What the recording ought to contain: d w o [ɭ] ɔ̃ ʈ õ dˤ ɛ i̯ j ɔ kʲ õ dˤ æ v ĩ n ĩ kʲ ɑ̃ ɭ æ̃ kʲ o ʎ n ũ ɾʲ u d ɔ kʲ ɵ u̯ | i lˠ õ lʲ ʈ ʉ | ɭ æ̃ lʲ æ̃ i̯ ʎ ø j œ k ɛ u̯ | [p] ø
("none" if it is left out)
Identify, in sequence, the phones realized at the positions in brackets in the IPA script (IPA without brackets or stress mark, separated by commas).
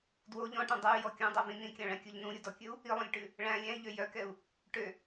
ʎ, ʈ